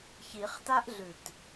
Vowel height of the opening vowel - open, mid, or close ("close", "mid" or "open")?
close